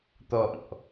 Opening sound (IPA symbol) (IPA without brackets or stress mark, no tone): t̪